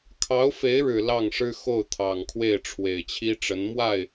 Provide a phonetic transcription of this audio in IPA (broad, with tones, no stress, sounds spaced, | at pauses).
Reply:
kʰ ɑ˧˥ ʊ̯ f e˧˥ ɪ̯ ɻ ɻ̩˨˩ l ɑ˥˩ ŋ ʂ ɻ̩˥ x o˥˩ ʊ̯ t̪ʰ ɑ˨˩ ŋ kʰ w e˥˩ ɪ̯ ʈ͡ʂʰ w e˨˩ ɪ̯ t͡ɕʰ i˥ ʈ͡ʂ ə˧˥ n m w a˥˩ ɪ̯